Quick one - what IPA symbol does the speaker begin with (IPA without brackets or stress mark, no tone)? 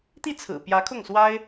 t̪